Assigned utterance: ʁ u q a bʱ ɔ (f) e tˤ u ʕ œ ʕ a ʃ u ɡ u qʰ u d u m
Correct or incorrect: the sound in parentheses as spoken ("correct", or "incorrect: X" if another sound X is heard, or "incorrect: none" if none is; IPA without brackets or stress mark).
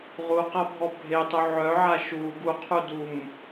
incorrect: bʱ